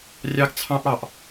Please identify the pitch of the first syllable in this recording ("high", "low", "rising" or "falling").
high